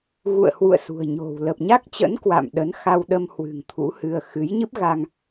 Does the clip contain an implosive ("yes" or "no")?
yes